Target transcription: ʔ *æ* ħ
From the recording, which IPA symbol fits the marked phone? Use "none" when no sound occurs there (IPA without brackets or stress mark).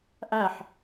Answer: æ